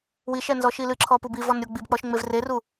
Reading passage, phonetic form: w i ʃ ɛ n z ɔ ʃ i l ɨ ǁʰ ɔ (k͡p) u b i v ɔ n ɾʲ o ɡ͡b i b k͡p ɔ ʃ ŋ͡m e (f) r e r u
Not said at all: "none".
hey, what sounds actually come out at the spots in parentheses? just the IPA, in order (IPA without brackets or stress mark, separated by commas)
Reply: p, v